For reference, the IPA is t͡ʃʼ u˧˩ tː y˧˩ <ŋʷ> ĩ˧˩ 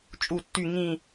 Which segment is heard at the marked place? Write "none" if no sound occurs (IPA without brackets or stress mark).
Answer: ŋ